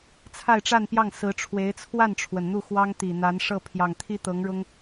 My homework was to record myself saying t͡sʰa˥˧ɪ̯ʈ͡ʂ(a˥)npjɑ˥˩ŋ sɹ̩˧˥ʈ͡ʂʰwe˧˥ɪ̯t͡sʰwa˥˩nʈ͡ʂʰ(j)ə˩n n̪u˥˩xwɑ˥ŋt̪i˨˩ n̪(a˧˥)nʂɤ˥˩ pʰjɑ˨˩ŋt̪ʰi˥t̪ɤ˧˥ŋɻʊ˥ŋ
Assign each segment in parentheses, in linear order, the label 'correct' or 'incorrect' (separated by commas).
incorrect, incorrect, correct